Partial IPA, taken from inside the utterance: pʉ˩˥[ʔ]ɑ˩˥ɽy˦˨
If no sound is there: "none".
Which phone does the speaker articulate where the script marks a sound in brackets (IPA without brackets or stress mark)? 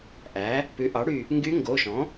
ʔ